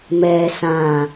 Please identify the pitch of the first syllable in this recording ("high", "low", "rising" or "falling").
low